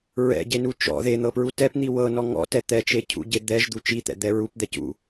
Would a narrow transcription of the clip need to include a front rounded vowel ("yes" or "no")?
no